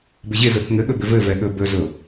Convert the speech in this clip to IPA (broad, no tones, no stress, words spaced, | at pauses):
bɪʑɪzʊθ ŋɘɠɵ bɪvɘvɛ ɠɵbɵzʊ